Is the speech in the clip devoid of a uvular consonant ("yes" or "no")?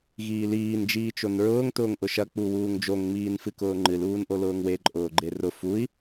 yes